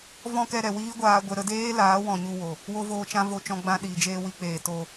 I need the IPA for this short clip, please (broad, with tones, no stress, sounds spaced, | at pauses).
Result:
v ɔ̃˦ k ɛ˧ ɾ ɛ˨ w iː˦ ɡʷ aː˧ ɡʷ ɛ˧ ɾ ə˧ d eː˦ l aː˨˦ w ɔ̃˨ ɲ u˧ w o˨ | w o˦ v oː˧ t͡ʃ ã˦ v o˧ t͡ʃ ɔ̃˧ ɡ͡b ã˧ ɗ iː˨ d͡ʒ eː˧ w i˧ k͡p eː˨ t o˧